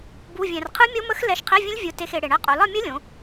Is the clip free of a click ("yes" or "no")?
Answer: yes